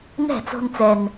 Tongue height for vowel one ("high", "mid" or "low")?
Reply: mid